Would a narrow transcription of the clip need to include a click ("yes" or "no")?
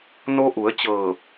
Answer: no